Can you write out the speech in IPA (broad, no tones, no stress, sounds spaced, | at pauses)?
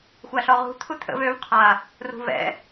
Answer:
xʷ a ɬ ɔ ʁ ṳ t̪ʰ u t̪ʰ ə̰ v ø v qʰ a | r ṳ v ɛ̰